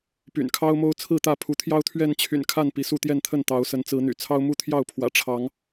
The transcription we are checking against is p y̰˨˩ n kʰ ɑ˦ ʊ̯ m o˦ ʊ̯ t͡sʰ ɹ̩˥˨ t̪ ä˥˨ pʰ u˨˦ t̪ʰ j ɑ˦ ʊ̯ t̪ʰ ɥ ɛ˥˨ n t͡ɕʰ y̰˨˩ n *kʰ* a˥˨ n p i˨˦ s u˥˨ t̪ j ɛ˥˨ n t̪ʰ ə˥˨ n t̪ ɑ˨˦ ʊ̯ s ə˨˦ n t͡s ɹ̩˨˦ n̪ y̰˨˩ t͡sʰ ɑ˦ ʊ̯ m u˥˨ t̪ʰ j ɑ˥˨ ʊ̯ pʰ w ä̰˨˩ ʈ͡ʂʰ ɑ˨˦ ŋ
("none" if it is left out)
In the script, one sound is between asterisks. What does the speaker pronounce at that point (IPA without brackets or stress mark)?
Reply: kʰ